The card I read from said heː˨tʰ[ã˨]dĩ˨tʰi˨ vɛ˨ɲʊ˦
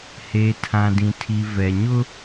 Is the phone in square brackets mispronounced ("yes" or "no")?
no